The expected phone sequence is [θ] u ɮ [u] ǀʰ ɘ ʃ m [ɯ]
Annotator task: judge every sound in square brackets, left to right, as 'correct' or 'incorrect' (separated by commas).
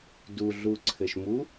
incorrect, correct, incorrect